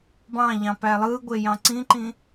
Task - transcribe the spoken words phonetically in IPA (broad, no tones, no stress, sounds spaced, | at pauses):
b ɑ̃ ʎ ɑ̃ p æ lˠ ɯ ɡʷ e j ɑ̃ ǀ ĩ ǃ ĩ